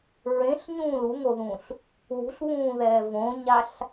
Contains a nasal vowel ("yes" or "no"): yes